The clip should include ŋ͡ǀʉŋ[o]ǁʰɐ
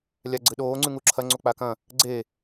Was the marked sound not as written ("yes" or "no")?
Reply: yes